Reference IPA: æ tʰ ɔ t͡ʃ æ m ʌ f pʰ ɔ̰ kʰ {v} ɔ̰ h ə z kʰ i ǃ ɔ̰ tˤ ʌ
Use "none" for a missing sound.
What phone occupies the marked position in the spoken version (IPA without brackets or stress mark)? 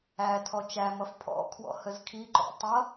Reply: w